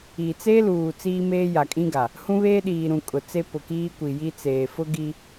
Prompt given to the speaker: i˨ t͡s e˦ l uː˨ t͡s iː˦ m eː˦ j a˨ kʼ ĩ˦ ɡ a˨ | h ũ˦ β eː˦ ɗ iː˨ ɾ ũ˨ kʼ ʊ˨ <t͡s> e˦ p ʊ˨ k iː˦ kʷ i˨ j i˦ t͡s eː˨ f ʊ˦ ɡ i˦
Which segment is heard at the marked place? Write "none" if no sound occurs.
t͡s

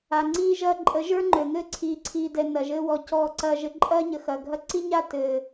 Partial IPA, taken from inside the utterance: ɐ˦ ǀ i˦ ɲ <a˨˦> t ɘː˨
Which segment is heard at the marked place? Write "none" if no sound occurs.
a˦˨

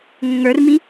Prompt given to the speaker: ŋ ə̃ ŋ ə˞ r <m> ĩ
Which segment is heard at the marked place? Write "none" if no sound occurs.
m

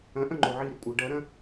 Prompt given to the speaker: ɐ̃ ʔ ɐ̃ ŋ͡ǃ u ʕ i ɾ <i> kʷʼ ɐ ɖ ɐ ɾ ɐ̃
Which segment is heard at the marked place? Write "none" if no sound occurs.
i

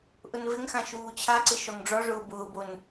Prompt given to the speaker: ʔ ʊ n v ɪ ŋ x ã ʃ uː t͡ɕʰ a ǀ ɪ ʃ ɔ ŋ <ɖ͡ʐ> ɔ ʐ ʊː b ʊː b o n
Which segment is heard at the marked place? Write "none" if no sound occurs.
ɖ͡ʐ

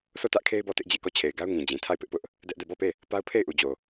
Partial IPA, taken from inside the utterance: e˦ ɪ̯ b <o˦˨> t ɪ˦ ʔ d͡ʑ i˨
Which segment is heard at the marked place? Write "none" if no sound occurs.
ɔ˦˨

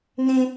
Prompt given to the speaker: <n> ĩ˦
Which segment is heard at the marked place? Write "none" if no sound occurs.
n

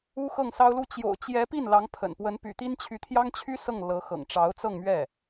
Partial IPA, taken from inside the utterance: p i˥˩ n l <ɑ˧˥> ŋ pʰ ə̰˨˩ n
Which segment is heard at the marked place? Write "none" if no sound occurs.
ɑ˧˥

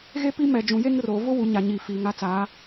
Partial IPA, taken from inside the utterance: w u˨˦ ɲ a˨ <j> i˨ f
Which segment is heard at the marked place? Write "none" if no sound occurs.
ɲ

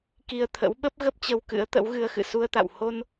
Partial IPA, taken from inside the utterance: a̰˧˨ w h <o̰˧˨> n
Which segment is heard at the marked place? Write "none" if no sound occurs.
o˧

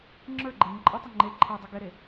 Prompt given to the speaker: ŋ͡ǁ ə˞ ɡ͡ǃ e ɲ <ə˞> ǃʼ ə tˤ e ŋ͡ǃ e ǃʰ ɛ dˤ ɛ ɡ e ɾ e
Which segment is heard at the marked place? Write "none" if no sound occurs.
ə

